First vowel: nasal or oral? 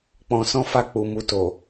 nasal